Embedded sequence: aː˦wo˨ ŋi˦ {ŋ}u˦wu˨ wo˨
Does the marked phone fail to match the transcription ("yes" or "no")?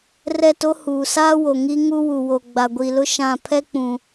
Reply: no